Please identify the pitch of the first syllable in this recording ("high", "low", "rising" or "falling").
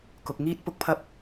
low